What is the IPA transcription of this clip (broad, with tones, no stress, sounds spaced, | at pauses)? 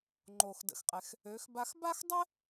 ŋ͡ǃ o˩ x d ə̰˩ x qʼ ɛ˩ x | ø˩˧ x b a˧ x b a˥ x dˤ ɛ˥